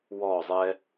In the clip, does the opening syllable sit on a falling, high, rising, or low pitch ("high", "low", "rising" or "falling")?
falling